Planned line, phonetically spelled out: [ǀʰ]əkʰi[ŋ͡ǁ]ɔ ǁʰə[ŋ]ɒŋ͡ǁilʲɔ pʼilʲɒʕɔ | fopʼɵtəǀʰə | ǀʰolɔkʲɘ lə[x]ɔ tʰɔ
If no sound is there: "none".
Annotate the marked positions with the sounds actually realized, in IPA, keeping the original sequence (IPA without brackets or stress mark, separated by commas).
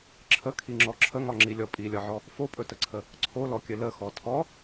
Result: ǁʰ, ŋ͡ǁ, ŋ, x